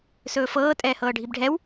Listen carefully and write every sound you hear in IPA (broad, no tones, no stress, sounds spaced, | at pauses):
s ɵː f ɤː tʼ ɛː h ɤː ɖʱ i b ɖʱ ɛ w